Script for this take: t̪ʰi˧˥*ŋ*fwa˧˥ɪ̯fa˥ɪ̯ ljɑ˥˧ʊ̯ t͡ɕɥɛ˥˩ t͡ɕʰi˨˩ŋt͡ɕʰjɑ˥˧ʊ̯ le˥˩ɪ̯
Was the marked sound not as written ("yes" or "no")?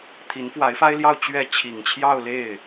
yes